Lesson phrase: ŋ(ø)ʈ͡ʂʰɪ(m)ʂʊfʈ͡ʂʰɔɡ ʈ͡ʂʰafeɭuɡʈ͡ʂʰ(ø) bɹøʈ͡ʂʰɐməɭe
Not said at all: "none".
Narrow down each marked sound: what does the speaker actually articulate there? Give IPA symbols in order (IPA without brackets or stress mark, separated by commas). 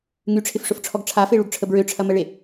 y, f, ə